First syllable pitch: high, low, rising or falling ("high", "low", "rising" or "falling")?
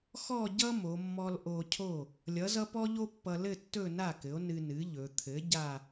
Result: falling